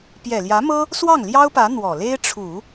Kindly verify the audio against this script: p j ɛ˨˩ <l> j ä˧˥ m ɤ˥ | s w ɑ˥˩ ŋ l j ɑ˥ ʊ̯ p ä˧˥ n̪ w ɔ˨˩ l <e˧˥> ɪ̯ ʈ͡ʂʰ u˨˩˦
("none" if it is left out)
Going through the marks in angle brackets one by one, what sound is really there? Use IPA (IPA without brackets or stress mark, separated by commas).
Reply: l, e˥